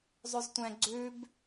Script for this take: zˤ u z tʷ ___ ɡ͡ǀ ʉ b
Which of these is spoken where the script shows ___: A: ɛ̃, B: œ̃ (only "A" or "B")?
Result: A